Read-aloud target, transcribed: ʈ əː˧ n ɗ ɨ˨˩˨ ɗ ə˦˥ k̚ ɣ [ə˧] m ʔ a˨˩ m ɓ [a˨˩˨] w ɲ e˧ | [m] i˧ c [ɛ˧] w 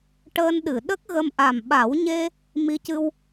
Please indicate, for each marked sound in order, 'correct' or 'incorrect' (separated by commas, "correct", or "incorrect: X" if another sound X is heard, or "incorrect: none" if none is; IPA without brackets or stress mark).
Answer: correct, incorrect: a˨˩˦, correct, incorrect: ɨ˧